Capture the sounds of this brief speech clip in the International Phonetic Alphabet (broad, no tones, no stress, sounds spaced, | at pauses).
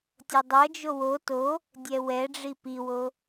tʲ ʌ dˤ ʌ d͡ʒ o w o t o | dʲ ɛ w ɛ ɖ͡ʐ i p i w o